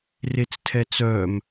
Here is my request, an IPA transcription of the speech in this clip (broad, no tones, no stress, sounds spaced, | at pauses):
r e t͡s tʰ ɛ t͡s œ m